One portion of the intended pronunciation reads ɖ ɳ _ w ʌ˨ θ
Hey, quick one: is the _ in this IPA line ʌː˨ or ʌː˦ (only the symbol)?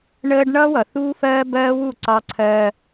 ʌː˦